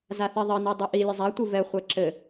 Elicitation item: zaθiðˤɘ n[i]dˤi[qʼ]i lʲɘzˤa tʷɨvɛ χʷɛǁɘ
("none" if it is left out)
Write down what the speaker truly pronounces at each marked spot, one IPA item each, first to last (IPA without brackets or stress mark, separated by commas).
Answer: i, ʔ